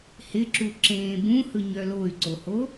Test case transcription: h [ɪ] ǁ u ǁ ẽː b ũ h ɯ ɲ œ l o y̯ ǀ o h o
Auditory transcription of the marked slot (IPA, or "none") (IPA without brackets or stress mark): ɪ